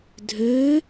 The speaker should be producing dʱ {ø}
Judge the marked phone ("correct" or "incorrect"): correct